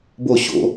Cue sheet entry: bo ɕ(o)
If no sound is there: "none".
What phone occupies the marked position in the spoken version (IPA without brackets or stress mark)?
o̰